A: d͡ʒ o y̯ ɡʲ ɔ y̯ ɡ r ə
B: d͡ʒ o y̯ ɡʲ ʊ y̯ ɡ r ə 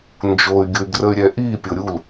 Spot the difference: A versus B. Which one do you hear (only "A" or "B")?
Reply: B